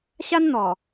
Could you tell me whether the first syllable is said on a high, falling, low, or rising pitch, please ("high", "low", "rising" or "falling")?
high